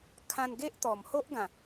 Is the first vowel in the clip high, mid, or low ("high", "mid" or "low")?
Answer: low